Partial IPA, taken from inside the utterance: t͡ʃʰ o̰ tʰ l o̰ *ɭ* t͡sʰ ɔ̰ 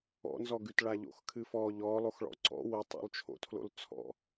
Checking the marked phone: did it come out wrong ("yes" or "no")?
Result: yes